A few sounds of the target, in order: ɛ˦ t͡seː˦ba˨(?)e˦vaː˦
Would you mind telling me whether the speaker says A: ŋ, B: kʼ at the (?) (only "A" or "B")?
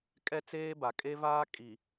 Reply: B